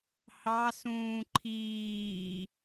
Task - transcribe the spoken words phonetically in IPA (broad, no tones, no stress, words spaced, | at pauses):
hɑsũː ǃʰiː